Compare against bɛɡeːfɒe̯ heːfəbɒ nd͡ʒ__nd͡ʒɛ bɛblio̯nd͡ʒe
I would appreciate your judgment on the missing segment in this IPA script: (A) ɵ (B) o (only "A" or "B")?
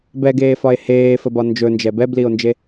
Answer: A